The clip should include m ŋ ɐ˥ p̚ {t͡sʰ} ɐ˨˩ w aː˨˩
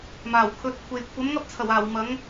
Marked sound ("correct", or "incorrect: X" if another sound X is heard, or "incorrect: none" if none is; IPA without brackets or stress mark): correct